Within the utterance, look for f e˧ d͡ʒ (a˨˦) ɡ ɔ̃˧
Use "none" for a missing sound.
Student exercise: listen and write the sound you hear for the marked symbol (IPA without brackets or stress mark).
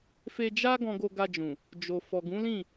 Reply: a˦